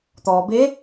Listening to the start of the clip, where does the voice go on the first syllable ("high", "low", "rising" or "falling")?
low